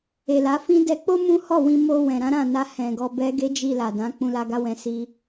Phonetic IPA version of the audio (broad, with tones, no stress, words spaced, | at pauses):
e˨la˨˦fĩ˦ dɛ˧k͡po˦ mũ˦ hɔ˦˨wĩ˧ mo˧wɛ̃˨ ɾã˨˦ ɾã˦˨na˧hɛ̃˨ ɡɔ˧bɛ˦ɡe˦ d͡ʒi˧la˨dã˨˦ k͡pũ˧la˧ɡa˧wɛ̃˧ si˦